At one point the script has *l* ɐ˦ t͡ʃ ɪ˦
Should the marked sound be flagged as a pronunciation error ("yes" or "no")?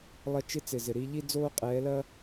yes